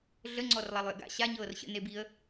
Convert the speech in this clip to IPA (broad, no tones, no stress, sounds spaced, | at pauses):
ɮ ə ŋ͡ǀ ɔ r lˠ a lˠ j ə̰ ɡ a̰ ɕ a ɲ ɤː r ɕ ə̰ n e b i ə̯